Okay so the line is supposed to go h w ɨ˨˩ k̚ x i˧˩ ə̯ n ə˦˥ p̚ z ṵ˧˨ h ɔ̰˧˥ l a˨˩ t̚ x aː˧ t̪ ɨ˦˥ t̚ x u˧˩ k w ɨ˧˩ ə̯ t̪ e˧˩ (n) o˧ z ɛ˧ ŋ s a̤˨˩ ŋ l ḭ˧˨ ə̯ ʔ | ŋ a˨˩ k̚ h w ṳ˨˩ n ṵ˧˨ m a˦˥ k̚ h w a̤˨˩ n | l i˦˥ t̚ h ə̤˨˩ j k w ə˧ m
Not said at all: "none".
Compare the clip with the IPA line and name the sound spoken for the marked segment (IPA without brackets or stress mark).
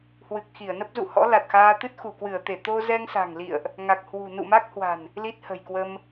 t̪